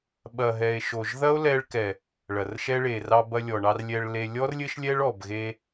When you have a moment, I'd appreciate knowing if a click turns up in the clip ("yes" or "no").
no